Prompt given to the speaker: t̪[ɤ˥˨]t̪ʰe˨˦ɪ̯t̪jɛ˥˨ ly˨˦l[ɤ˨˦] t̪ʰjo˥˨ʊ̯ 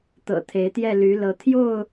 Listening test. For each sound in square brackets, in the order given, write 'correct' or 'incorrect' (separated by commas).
incorrect, correct